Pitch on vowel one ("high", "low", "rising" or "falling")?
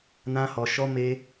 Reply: high